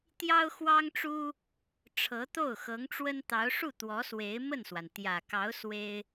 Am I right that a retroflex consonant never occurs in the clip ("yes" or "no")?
no